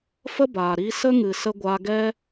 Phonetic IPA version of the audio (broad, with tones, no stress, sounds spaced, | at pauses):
f ə˦ b aː˨ ɾ i˧ s ə˦ ŋ ɨ˨ s ə˧ ɡʷ aː˧ ɡ ɛ˦